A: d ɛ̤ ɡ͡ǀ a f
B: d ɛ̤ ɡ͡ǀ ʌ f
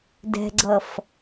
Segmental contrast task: B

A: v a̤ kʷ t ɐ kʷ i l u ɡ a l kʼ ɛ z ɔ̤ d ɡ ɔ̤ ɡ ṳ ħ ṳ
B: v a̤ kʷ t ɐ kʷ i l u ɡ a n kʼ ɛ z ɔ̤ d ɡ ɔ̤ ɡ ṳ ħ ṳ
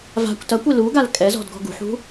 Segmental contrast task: A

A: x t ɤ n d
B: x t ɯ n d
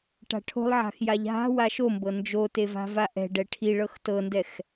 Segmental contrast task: A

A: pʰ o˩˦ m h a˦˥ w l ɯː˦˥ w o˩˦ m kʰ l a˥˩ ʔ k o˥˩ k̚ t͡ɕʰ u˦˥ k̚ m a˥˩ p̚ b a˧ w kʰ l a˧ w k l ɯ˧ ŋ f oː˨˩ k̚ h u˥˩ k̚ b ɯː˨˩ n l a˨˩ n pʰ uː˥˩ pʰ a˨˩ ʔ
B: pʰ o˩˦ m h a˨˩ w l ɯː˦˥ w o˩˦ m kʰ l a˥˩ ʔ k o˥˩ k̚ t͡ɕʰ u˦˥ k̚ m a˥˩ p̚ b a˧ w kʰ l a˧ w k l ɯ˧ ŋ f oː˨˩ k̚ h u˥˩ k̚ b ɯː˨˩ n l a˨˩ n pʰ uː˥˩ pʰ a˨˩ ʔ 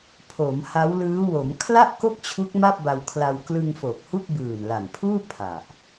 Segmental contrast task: A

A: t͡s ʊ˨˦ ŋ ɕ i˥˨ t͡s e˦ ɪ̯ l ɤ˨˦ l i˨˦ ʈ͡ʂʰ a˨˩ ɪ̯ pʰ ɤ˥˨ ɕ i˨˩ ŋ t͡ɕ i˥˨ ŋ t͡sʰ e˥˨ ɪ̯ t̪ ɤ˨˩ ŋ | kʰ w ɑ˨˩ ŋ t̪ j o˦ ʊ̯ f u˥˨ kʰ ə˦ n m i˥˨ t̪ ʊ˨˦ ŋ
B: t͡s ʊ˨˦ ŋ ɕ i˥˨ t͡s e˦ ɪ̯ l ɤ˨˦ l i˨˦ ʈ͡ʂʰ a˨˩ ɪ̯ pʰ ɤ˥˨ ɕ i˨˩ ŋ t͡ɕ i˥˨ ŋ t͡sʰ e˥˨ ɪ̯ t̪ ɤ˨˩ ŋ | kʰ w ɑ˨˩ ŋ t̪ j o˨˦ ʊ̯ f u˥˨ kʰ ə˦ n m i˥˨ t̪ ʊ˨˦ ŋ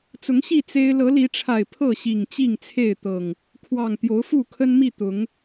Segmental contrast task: B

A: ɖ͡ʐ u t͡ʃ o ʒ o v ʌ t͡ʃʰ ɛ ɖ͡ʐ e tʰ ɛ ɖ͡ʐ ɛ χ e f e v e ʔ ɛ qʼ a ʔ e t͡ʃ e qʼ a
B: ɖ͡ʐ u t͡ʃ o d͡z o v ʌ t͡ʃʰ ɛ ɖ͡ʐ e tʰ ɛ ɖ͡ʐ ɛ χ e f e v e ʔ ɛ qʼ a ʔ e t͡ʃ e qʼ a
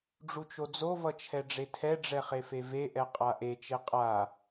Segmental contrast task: B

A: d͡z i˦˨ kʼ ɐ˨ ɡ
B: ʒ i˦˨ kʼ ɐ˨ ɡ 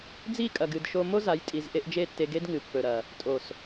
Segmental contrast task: A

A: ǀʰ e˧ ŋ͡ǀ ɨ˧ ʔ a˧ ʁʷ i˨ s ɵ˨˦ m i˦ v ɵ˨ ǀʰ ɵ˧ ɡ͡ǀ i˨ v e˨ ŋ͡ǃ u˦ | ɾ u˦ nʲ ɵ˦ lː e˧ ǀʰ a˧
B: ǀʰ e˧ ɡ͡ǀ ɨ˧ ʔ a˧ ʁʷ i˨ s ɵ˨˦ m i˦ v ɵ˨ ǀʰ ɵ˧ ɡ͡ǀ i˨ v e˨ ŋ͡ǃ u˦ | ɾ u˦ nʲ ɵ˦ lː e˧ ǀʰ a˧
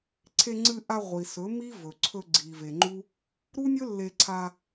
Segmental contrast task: A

